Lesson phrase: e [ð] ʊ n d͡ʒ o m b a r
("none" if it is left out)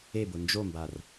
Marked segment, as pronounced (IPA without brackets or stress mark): b